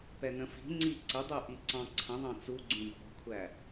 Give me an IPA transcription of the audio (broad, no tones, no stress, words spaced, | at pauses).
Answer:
pɛnə̃fi̤ŋ͡ǀi ǀədˤu ʔiǀɑ̃ǀʰə̃ðˤɑ̃ t͡suɡ͡ǀũ bɔ̤kʷʰæ